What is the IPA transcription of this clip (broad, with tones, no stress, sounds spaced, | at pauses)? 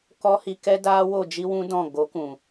k ɔ˦ h i˧ k ɛ˦ d aː˦ w o˦˨ d͡ʒ i˦ w ũ˦ d ɔ̃˦˨ ɡ o˨˦ k ũ˨